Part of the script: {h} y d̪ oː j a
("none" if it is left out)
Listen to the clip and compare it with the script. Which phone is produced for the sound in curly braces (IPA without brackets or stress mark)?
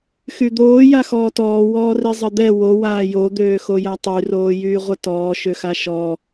x